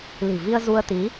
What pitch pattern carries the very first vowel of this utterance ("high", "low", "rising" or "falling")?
low